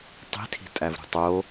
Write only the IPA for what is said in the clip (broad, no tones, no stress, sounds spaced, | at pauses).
tˤ i̤ tʰ i̤ tʼ æ v ɾ ṳ tˤ o